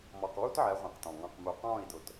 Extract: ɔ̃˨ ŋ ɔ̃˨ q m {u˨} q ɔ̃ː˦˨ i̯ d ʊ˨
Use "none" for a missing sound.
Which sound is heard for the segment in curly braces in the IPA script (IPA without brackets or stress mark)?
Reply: u˨